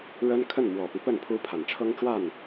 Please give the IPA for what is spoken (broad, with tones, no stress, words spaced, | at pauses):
ɻə˥n kʰə˥˩nmwɔ˨˩pi˦pə˥˩n pʰu˥pʰa˨˩n ʈ͡ʂʰɤ˥ŋʈ͡ʂwa˥˩n